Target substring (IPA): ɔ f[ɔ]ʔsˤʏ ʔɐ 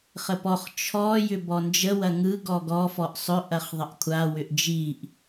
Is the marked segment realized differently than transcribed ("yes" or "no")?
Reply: no